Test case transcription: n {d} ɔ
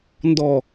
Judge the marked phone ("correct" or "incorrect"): correct